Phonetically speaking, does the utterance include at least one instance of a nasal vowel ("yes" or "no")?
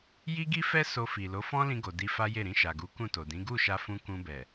yes